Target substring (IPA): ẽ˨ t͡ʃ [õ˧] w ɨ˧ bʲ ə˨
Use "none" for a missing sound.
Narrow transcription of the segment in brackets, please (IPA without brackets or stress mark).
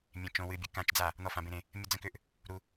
õ˧